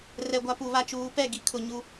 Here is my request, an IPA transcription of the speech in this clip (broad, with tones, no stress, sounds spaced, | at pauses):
r ɛ˨ ɡʷ a˦ p u˨ β a˦ t͡ʃ uː˨˦ p ɛ˦˨ ɡ i˦ kʰ ʊ˨ ɲ u˦